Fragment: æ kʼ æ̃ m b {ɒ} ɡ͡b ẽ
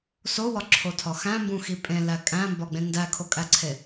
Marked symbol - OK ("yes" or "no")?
yes